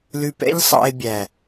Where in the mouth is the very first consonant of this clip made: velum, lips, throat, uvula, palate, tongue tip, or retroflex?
tongue tip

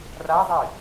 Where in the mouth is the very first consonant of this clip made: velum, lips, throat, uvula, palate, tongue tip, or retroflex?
tongue tip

